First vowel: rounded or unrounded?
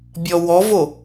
rounded